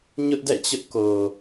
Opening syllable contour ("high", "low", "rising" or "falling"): high